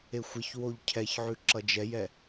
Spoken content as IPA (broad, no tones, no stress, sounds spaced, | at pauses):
e xʷ ə ç w o ʎ cʰ ɛ ç ʕ ʉ ǁ ʌ d͡ʒ ɛ j ɛ